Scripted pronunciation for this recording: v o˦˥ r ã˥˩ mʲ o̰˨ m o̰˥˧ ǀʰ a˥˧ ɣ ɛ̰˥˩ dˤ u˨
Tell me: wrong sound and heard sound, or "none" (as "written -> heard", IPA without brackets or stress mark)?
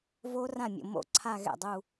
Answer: u˨ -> u˥˧